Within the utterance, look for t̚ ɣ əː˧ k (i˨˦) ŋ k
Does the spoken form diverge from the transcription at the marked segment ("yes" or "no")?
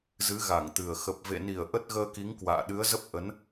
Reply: no